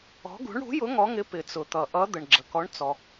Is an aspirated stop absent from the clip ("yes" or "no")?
yes